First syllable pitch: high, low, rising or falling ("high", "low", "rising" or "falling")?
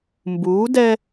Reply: rising